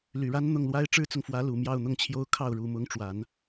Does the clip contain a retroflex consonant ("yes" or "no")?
yes